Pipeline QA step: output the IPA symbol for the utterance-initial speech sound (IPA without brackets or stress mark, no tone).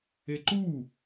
e